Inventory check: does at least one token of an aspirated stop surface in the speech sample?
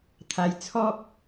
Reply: yes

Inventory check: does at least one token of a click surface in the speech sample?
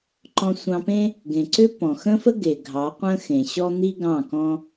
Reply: yes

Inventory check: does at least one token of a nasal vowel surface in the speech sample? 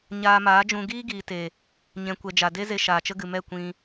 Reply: yes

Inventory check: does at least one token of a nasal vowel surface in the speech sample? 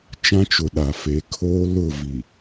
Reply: yes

